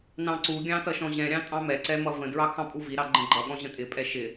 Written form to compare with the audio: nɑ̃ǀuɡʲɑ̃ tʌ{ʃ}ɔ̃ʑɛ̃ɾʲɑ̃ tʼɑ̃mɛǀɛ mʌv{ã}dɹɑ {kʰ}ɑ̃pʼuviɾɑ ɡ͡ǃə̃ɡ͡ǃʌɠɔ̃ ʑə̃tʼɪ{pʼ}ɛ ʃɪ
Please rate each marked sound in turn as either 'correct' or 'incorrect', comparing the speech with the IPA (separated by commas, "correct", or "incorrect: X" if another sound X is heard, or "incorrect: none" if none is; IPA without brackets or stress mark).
correct, incorrect: ə̃, correct, correct